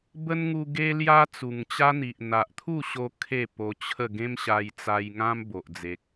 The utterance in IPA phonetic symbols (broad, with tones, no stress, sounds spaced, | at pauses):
b ə˦ n ŋ u˧ ɡ e˦ l j a˦ t͡s u˨˩ ŋ t͡ɕ a˦ n̪ i˨ ʔ n̪ a˨ ʔ t̪ʰ u˥˧ ɕ o˧ kʰ e˥˧ p o˧ t͡ɕʰ ə˥˧ ɡ ẽ˦ m ɕ a˧ j t͡s a˧ j ŋ ã˦ m b o˨ ʔ d͡z e˨ k̚